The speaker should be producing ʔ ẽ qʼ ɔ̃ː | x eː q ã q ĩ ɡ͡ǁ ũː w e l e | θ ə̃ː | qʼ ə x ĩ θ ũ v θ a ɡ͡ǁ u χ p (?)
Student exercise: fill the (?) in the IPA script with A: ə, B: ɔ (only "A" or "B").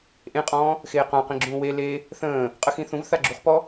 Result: B